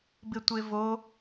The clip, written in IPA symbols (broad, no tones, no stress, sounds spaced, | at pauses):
b ɪ tʷ e v o